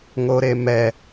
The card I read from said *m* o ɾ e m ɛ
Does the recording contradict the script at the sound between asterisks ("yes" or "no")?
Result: yes